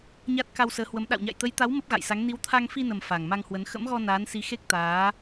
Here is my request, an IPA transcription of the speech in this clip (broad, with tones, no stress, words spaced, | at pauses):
ɲa˦˥t̚ ka˧wsəː˨˦hwə˨˦m ɗa̰˧˨wɲa̰˧˨jt̪ə˨˦jt̪a˨˦w mə˦˥p̚ɣa̰˧˨jsa˨˦ŋ ni˨˦wt̪ʰa˧ŋfi˧nə˨˩m fa˨˩ŋma˧ŋhwə˨˦n xə̰˧˥mɣɔ˧ naː˨˦nsi˨˦xe˦˥k̚ t̪aː˨˦